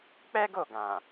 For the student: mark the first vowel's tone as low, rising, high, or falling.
high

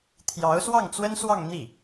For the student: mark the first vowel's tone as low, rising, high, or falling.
rising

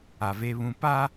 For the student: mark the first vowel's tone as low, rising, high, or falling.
low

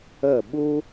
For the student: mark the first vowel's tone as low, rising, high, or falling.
falling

